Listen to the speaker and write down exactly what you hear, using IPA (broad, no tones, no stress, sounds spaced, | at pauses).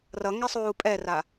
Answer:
r ʌ ŋ ɛ sˤ uː pʼ ɛ r a